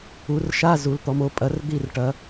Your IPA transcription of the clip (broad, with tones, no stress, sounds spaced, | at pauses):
u˩˧ r ʃ a˧˥˧ z u˩˧ l t̪ ɔ˩˧ m o˩˧ pʼ ɐ˩˧ r d̪ i˦˨ r ʈ ɐ˩˧